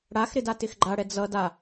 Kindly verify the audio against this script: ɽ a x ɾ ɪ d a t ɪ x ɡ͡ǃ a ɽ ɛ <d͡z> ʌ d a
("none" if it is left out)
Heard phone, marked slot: d͡z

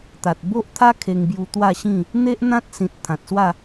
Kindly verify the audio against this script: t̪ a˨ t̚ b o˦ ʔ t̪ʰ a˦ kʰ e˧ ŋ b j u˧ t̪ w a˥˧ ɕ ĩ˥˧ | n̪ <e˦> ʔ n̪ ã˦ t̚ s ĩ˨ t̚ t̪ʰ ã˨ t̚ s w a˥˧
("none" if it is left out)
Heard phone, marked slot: e˦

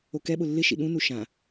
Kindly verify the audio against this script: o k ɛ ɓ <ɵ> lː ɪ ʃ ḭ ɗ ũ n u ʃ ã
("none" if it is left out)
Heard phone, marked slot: ʊ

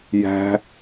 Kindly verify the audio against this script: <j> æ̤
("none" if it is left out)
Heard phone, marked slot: j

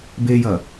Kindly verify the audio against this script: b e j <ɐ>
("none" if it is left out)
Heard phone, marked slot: ɐ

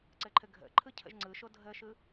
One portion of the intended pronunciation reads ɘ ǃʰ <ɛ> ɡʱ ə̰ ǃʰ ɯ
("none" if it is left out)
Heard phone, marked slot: ɘ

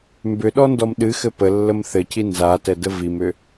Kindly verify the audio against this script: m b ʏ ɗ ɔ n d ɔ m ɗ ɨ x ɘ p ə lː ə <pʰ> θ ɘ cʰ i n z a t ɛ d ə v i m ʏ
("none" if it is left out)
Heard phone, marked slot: m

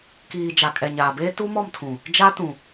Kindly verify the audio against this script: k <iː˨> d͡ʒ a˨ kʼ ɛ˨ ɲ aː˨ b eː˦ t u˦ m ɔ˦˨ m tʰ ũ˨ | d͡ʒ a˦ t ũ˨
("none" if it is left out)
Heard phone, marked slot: iː˨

